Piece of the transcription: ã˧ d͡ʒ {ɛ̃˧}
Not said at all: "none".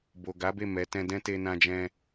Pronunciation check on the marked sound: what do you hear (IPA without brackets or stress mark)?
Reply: ɛ̃˧